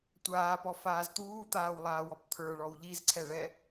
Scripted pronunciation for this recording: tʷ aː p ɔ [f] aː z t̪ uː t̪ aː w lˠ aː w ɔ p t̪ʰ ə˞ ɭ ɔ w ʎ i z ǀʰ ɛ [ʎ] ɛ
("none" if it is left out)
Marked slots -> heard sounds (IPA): f, ɭ

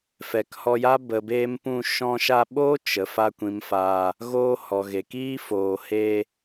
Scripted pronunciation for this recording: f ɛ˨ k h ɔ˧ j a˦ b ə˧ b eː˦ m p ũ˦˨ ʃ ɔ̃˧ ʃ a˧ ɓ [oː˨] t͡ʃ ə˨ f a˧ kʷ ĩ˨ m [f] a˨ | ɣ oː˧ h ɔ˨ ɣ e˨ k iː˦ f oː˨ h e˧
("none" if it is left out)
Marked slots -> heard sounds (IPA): oː˦, f

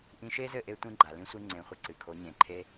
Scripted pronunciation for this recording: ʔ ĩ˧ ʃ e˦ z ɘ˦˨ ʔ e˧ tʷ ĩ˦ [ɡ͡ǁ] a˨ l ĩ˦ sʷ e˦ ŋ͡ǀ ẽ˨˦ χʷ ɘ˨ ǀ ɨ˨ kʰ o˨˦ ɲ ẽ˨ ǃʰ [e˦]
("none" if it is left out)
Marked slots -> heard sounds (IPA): ɡ͡ǃ, e˦

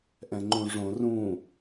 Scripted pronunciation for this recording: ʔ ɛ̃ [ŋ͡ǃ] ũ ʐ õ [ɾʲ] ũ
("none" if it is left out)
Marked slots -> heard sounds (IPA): ŋ͡ǃ, r

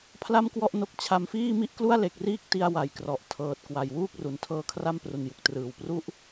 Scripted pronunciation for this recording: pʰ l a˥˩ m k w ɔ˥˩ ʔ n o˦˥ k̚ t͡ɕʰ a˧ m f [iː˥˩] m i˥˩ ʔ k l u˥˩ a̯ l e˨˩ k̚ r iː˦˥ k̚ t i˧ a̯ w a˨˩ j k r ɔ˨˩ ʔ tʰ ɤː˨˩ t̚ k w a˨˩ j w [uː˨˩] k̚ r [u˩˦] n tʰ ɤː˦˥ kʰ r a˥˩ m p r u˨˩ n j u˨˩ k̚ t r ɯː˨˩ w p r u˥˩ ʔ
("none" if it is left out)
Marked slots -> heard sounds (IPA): iː˥˩, uː˥˩, u˩˦

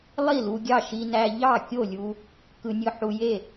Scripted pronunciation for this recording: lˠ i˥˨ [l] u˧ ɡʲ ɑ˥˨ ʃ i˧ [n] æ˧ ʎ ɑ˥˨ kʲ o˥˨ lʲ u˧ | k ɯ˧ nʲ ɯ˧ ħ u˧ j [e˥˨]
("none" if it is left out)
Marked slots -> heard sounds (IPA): l, n, e˥˨

